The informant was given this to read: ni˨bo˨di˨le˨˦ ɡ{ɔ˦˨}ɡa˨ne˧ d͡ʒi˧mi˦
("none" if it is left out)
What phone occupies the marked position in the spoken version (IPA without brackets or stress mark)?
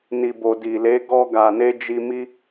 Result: ɔ˧